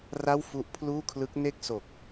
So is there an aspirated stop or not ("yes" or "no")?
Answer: yes